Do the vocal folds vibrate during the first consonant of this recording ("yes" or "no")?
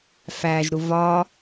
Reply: no